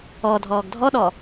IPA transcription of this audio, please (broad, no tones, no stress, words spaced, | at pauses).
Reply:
ɔ dʱɔːɡdʱɔɗɔ